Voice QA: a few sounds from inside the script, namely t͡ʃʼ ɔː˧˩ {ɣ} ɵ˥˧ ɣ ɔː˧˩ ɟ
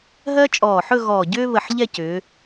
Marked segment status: incorrect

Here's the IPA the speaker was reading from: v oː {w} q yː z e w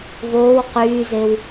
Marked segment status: correct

